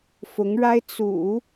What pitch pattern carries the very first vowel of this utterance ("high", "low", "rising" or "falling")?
rising